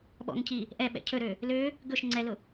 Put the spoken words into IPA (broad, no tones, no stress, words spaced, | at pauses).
ɓɔ̰ŋcʰi | ʔɛɓɛ̰ cʰɵɾø | lø | ɡɵʃ ŋ͡ǀɛlʊ